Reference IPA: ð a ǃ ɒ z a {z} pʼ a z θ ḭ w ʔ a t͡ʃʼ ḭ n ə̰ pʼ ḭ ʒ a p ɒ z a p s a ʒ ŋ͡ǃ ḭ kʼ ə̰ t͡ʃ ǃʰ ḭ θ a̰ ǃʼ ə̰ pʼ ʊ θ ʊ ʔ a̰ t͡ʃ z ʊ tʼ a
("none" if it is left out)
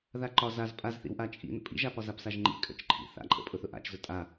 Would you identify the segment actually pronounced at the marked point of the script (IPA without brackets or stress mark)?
z